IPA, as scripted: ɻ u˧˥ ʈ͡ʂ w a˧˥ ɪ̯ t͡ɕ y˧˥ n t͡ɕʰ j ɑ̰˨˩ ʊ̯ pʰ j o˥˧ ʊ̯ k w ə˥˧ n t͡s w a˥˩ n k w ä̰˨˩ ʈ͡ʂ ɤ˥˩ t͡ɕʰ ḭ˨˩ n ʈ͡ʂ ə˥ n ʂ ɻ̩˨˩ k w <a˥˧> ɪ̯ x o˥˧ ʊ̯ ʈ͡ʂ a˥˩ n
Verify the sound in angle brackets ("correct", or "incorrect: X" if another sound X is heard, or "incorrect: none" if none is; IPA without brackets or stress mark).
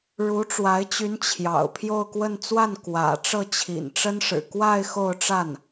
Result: correct